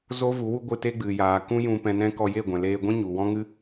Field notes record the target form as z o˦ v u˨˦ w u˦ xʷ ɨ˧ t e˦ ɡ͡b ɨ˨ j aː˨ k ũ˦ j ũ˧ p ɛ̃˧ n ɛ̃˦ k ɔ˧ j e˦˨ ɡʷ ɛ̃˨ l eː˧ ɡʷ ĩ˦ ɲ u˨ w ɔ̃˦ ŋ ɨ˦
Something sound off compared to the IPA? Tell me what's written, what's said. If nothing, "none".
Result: xʷ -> ɡʷ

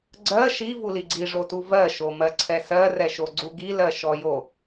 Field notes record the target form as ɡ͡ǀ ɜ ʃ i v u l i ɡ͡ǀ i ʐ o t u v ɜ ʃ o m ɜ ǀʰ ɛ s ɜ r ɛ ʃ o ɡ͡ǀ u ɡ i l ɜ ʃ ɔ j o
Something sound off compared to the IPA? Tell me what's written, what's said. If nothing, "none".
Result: none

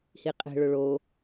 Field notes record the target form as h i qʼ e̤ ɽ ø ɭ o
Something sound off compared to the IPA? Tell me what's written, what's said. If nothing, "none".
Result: ɽ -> ɭ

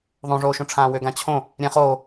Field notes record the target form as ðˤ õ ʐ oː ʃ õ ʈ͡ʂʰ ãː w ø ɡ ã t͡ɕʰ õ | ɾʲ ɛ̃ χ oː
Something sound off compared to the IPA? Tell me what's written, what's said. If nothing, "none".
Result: none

